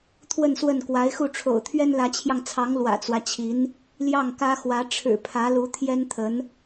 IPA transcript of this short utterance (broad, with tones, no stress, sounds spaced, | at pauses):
t̪ʰ w ə˥˧ n s w ə˥˩ n k w a˧˥ ɪ̯ x u˥˩ ʈ͡ʂʰ o̰˨˩ ʊ̯ t̪ʰ ɥ ɛ˥ n l ä˧˥ t͡ɕʰ j ɑ˧ ŋ t͡sʰ ɑ˧˥ ŋ l w ä̰˨˩ t͡s w ä˦ t͡ɕʰ i˧˥ n | l j ɑ˥˩ ŋ k ä˥ x w ä˧˥ ʈ͡ʂʰ ɻ̩˨˩ pʰ ä˧˥ l u˧˥ t̪ʰ j ɛ˥ n t̪ʰ ə˧˥ n